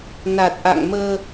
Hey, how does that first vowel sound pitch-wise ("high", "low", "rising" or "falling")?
low